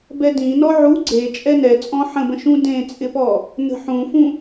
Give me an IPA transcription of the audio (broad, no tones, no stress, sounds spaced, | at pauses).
b ɛ d ĩ n ɔ ʕ u ɡ͡ǀ e t͡ʃʼ ɛ n ɛ t͡sʼ ɔ̃ ħ ə̃ b ə̃ ʃ ũ d ẽ t͡sʼ ɪ p ɔ | n ə̤ ħ ũ f ũ